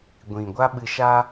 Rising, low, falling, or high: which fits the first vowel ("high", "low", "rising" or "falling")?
low